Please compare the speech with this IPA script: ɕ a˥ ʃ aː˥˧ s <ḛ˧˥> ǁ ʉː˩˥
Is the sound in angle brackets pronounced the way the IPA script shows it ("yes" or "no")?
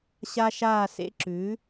yes